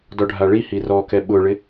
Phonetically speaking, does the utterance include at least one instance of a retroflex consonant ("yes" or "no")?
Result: yes